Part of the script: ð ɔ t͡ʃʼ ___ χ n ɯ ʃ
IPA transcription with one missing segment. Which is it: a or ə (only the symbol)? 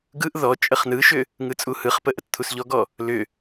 ə